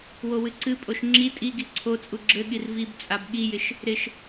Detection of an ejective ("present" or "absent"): present